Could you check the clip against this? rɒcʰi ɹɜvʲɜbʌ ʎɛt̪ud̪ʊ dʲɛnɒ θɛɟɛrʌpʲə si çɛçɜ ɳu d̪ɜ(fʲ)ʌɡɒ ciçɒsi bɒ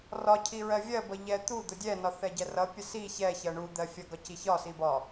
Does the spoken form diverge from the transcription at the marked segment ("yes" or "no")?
no